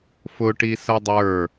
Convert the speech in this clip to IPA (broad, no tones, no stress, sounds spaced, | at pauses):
f ʊ ʈ i s ɐ dˤ ə˞